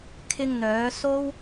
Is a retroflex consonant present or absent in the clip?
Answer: absent